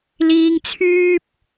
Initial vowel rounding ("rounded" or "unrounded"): unrounded